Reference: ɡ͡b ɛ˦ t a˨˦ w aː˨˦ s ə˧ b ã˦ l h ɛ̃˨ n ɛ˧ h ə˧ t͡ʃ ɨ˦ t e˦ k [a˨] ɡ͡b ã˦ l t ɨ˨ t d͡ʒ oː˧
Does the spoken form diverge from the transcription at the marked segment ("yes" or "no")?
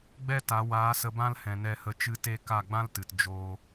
yes